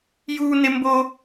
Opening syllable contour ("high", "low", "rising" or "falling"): high